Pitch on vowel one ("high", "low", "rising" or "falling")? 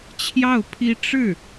falling